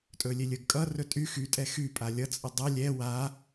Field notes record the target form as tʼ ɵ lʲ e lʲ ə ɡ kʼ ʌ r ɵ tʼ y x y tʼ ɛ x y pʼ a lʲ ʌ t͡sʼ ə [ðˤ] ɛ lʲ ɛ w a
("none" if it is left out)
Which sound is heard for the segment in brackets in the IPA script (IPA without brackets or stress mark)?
dˤ